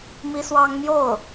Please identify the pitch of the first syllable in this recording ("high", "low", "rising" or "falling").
high